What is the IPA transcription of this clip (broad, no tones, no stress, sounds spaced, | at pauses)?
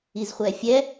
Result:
i z χʷ ɛ fʲ ɛ